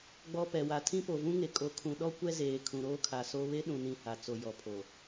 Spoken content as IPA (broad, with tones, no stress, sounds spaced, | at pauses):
ɡ͡b ɔ˨ p ɛ˨ w a˨ tʰ ĩ˦ p o˨ v ũ˦ ŋ e˨ kʼ o˨ kʰ ũ˨ ɗ ɔ˦ kʷ ɛ˦ z eː˨ kʰ ũ˨ ɾ oː˦ kʰ a˨ s o˦ β e˦ ɗ ũ˨ n ĩ˨ h a˨ t͡s o˨ j ɔ˨ pʰ o˨